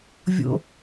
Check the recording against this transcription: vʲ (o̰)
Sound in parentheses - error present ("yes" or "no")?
no